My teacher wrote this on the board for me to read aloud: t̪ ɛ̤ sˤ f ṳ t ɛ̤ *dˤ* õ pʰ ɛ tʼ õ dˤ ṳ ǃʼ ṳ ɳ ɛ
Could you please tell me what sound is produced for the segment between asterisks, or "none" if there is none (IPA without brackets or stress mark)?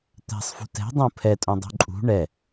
dˤ